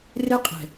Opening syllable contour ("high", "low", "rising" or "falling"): high